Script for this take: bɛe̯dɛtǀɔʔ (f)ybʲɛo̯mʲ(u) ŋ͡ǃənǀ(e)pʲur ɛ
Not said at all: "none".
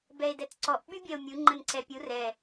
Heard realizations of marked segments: ɓ, u, ɛ

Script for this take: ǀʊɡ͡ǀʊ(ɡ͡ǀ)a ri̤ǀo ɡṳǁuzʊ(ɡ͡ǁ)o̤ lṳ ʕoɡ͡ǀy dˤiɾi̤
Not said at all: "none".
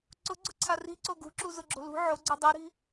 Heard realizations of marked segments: ǀʰ, ɡ͡ǁ

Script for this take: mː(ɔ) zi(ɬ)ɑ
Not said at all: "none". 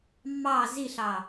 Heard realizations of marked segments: ɑ, ɬ

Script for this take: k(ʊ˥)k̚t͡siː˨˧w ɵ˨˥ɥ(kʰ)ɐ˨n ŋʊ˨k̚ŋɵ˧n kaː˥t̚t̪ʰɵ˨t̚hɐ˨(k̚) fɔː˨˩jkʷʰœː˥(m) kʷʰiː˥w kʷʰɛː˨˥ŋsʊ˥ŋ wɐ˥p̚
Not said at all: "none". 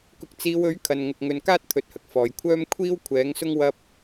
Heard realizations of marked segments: ʊ˨, kʰ, k̚, m

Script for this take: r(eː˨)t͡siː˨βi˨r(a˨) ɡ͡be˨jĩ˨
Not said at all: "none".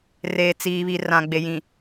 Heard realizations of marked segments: eː˨, ã˨

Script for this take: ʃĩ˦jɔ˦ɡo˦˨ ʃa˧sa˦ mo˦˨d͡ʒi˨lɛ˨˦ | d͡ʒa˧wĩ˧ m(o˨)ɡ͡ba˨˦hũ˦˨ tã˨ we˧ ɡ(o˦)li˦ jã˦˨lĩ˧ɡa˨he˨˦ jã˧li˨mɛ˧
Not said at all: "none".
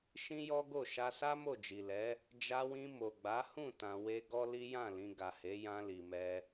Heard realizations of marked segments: o˨, ɔ˦

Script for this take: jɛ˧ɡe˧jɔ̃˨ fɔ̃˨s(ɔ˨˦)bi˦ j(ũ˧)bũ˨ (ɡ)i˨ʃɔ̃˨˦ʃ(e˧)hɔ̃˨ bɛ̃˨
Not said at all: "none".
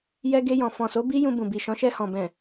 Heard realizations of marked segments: o˨˦, ũ˧, b, ɛ˧

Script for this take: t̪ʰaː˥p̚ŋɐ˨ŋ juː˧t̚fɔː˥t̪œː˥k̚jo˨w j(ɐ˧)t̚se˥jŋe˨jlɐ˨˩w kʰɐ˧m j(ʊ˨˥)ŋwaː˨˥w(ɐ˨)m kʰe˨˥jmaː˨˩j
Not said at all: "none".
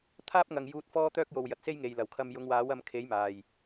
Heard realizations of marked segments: ɐ˨, ʊ˨˧, ɐ˧

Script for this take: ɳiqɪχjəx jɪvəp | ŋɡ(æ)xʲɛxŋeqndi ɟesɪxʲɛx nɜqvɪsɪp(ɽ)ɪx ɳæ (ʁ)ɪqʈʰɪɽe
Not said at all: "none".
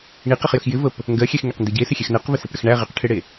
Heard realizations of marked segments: ɜ, ɽ, ʁ

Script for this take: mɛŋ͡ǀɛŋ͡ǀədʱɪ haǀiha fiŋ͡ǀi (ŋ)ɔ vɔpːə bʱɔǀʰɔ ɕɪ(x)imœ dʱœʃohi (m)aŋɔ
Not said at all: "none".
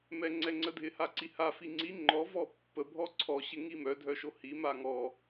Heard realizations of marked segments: ŋ͡ǃ, ŋ, m

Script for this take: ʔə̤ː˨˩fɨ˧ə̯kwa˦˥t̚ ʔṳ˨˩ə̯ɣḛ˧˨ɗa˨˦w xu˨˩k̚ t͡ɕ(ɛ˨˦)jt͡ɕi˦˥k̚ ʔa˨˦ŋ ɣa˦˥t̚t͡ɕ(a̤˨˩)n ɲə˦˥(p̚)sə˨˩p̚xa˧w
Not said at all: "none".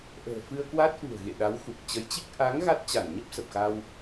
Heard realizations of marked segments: ə˨˦, a˧˩, p̚

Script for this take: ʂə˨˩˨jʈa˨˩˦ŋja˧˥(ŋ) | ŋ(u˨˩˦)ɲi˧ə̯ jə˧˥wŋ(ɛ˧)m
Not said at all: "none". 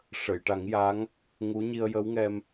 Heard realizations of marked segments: ŋ, u˧˥, ɛ˧

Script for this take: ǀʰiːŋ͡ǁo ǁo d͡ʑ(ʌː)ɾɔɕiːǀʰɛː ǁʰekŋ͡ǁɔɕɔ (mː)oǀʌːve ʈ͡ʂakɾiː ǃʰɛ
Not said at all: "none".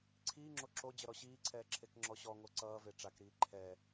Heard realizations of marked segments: ʌ, ŋ

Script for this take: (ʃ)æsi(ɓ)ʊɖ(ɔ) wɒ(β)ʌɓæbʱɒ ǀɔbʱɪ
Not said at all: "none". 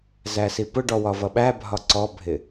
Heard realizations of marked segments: z, p, ɔ, v

